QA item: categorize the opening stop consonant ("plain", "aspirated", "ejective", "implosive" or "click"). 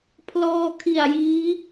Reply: aspirated